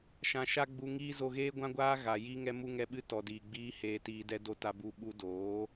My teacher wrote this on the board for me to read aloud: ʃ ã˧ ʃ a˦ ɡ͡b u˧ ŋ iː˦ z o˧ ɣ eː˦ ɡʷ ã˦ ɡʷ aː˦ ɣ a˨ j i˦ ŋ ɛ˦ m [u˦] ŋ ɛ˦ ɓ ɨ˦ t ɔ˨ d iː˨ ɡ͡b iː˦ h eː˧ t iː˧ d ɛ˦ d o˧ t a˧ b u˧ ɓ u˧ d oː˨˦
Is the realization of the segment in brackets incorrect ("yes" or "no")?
no